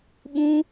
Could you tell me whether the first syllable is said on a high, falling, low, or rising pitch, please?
high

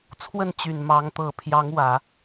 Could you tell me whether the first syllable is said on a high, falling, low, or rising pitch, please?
falling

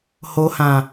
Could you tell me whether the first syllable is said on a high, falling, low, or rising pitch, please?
low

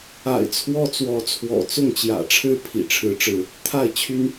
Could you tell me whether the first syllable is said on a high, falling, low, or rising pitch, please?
low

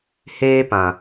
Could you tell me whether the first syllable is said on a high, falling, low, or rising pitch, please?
high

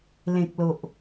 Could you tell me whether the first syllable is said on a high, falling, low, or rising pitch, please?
low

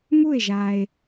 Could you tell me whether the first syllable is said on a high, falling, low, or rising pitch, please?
falling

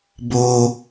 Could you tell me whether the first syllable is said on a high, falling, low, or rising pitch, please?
high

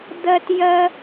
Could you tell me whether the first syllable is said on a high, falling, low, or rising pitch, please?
high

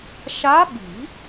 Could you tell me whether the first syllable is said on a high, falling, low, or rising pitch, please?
rising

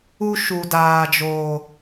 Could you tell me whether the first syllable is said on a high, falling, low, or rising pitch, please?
high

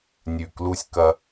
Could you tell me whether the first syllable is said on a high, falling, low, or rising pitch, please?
low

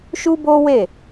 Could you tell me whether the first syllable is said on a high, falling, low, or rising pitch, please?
high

